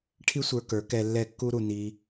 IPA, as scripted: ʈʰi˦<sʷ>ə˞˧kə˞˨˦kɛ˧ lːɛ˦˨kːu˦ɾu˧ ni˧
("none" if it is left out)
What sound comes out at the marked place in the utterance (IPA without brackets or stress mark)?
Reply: sʷ